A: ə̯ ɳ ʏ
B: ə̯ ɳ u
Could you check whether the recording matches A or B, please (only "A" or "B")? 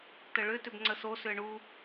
B